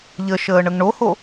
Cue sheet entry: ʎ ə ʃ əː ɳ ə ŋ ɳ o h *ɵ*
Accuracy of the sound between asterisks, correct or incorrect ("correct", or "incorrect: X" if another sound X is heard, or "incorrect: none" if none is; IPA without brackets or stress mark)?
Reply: incorrect: o